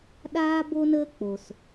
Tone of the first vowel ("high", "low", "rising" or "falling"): high